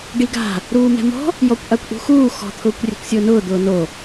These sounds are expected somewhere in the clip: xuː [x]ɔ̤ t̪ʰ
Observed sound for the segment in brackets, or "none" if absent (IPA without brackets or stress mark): x